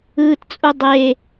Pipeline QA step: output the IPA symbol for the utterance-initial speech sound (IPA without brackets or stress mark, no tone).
ɯː